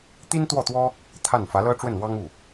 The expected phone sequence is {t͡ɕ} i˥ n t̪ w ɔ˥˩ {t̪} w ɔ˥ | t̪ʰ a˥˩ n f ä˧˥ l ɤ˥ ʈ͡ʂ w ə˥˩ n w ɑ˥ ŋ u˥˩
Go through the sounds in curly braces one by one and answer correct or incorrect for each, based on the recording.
incorrect: t̪, correct

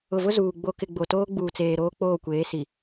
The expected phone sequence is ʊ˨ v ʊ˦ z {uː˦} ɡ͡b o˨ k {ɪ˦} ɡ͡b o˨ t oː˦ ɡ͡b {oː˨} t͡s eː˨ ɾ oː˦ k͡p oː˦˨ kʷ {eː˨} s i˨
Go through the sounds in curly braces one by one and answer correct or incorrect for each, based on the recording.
incorrect: uː˨, incorrect: ɪ˨, incorrect: uː˨, incorrect: eː˨˦

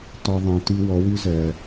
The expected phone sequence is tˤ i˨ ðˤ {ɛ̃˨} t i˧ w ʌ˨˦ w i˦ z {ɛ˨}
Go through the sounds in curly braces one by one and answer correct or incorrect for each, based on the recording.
correct, correct

